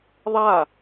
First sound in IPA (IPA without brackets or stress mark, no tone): ðˤ